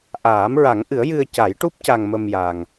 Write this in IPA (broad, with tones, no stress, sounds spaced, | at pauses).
ʔ aː˨˩˦ m ɹ a˨˩˦ ŋ ʔ ɨ˨˩˦ ə̯ j ɨ˧ ə̯ c a˨˩˦ j ʈ u˦˥ p̚ c a˧ ŋ m ə˧ m j a˨˩ ŋ